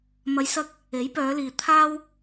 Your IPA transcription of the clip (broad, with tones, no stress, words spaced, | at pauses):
mɐ˨˧jsɐ˧k̚ | e˨˥jpœː˨˧liː˨ t̪ʰaː˥w